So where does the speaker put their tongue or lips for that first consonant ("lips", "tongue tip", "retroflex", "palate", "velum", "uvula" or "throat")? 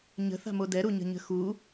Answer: palate